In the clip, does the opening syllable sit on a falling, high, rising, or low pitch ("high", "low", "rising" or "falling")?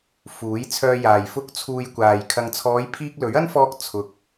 rising